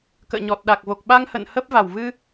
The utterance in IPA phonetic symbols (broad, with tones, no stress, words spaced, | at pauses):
kə̰ː˧˨ɲɔ˨˩t̚ɗa˨˩k̚ vo˨˩k̚ɓa˧ŋhə̰˧˨n hə˦˥p̚va˧˩w vɨ˧